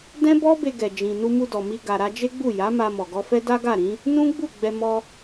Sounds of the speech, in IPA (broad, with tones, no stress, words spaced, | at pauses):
dɛ̃˦bɔ˦be˧ ɡɛ˧d͡ʒĩ˧ nu˧mu˧dɔ˨mi˧ ɡa˨ɾa˧ d͡ʒe˦ɡ͡bu˦˨ja˨˦ ma˧mɔ˨ɡɔ˧fɛ˦ da˦ɡa˦˨ɾĩ˨˦ | nũ˦ɡ͡bu˦˨ ɡ͡bɛ˧ mɔ˧